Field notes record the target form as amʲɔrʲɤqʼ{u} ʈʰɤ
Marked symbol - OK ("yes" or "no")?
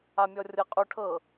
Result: yes